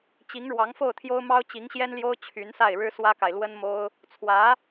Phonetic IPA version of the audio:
t͡ɕ i˧˥ ŋ ɻ w ɑ˧˥ ŋ f o˥˩ ʊ̯ t̪ʰ j o˥ ʊ̯ m ɑ˥ ʊ̯ t͡ɕ i˧˥ ŋ ɕ j ɛ˥ n l j o˥ ʊ̯ t͡ɕʰ y˧˥ n s a˥˩ ɪ̯ ɻ ɻ̩˥ s w ä˥ k a˨ ɪ̯ l w ə˥ n m o˥ ʊ̯ | t͡sʰ w ä˧˥

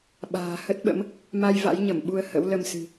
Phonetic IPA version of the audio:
ɓ a̤ː˨˩ h ə˦˥ t̚ ɓ ə̰˧˥ m | m a˧ j v a̰˧˥ j ɲ ə˧˩ m ɓ u˧ ə̯ h ə̰˧˥ w l ə˧ m s ɨ̤˨˩

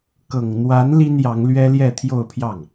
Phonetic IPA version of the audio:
k ɤ˨˩ ŋ n̪ w a˧˥ n l i˥ n j ɑ˧˥ ŋ l ɥ ɛ˥ l j ɛ˥˧ t̪ʰ j o˥˧ ʊ̯ pʰ j ɑ˥˩ ŋ

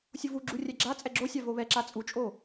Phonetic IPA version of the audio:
sʲ ʊ v u ɡ͡ǁ u rʲ ɛ ɡ͡ǁ a t͡sʼ ɛ ɡ͡ǁ o sʲ a v o β ɛ ǁ a t͡sʼ u t͡ʃʼ o

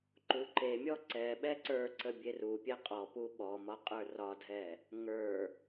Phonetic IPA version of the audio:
ǃ u ǃ e mʲ ɔ ǀ ɛ ɓ ɛ ǀ ə˞ ǀ ə bʲ e r u pʲ ɛ qʼ ɔ p u ɓ ɔ m ɒ qʼ ə˞ r ɒ dʱ ɛ | ŋ ə˞

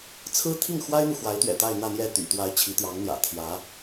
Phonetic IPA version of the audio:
t͡sʰ ɹ̩˥ t̪ʰ i˥˩ ŋ x w a˥ ɪ̯ n̪ u˨ x w a˧˥ ɪ̯ t̪ ɥ ɛ̰˨˩ t̪ a˥˧ ɪ̯ n̪ ä˥˧ n̪ j ɛ˥˩ t̪ y̰˨˩ t̪ w a˧˥ ɪ̯ t͡ɕʰ i˧˥ t̪ j ɑ˧˥ ŋ n̪ j ä̰˨˩ t̪ʰ j ä˧˥

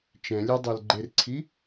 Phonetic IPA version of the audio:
t͡ʃ ɛ̃ lʲ e dˤ ɤ l ɡ͡ǃ e r ǀʰ i

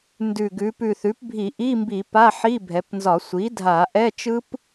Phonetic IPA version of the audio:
n d ʉ˨˩ ɡ ʉ˩˧ p ʉ˨˩ θ ʉ˩˥ p bʱ i˧˩˧ ʔ i˧˥˧ m b i˧˩˧ p a˧˥˧ ħ i˧˥˧ bʱ ɛ˩˧ p n z ɒ˧˩˧ sʷ i˩˥ dʱ a˧˩˧ ʔ ɛ˧˥˧ t͡ʃ ɯ˦˥ p

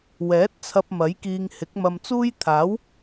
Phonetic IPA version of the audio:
w ɛː˨˥ t̚ t͡sʰ ɐ˧ p̚ m ɐ˨˥ j k iː˧ ŋ h ɪ˨˥ k̚ m ɐ˧ m t͡s uː˥ j t̪ʰ aː˨˥ w

